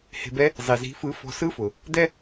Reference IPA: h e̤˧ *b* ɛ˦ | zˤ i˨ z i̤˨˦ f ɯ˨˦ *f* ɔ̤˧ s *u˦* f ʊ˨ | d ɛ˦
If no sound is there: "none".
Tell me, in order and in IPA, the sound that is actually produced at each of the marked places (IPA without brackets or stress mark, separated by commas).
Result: b, f, ɯ˦